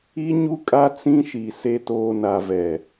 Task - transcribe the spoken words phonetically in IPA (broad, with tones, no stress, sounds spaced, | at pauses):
i˦ ɲ u˦ kʼ a˦ t͡s ĩ˦ ʃ i˨ s e˨ t oː˨ n a˨ v ɛ˨